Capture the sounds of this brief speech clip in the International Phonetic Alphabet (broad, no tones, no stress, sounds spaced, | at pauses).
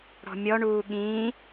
ɽ ɔ̤ mʲ ɔ ɳ uː ɠ ĩː